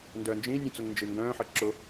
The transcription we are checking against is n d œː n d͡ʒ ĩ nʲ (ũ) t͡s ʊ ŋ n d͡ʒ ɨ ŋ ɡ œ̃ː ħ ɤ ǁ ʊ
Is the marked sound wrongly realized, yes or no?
no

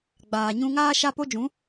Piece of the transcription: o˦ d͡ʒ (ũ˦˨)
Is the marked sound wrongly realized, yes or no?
yes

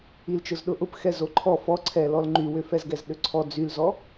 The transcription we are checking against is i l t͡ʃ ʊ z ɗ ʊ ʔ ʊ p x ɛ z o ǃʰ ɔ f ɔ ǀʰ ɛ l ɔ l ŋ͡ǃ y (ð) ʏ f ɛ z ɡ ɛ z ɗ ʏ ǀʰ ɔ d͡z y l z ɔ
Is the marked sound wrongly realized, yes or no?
yes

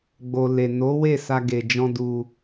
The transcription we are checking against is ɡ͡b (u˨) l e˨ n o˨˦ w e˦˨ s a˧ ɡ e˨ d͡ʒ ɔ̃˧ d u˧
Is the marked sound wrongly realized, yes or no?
yes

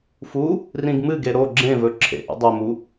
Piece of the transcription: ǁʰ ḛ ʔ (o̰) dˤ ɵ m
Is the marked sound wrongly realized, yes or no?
yes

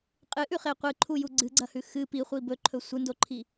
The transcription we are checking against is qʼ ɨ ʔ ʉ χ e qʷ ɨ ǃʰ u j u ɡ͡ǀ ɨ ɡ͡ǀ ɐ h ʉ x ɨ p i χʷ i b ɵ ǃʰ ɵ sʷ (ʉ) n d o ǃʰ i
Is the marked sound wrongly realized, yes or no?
yes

